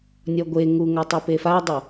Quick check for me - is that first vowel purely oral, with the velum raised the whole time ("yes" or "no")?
yes